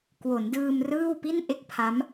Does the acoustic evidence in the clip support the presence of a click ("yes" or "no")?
no